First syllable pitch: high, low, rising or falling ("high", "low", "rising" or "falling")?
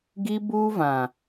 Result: high